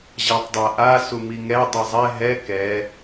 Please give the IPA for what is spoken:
ʑ a tˤ dˤ a ʔ a s u m i ŋ ɛ dˤ ɯ zˤ ɛ ɦ ɛ k ɛ

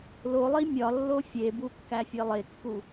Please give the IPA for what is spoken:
l o lˠ i mʲ ɒ lː o fʲ e b u kː æ fʲ e lˠ e kː u

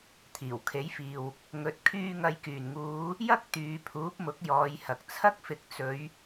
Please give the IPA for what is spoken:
t̪ʰ iː˨˩ w kʰ e˨˥ j f iː˨ w | ŋ ɵ˨˥ t̚ kʰ yː˧ ŋ ɐ˨ j k yː˨˩ n ŋ uː˨˧ | j ɐ˥ k̚ t̪ yː˨˧ pʰ uː˨˥ p̚ m ʊ˨˥ k̚ j ɔː˨˧ j h ɐ˨ k̚ t͡sʰ ɐ˥ k̚ f ɪ˨˥ k̚ t͡s ɵ˨˧ ɥ

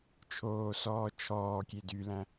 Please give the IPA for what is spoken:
t͡ʃʰ oː s ɔː t͡ʃʰ ɔː kʲ e d y l æ̃

